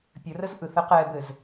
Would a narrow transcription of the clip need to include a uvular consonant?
yes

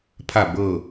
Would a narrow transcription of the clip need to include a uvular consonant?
no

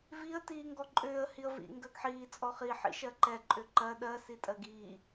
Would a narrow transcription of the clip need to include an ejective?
yes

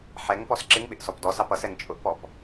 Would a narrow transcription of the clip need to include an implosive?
yes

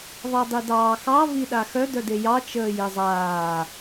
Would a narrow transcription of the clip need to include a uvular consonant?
no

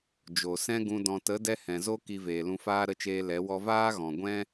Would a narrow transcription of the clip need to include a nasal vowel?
yes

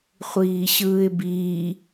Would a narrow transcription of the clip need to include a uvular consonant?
yes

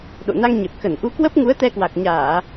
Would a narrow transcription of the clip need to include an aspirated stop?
no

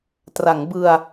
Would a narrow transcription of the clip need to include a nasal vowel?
no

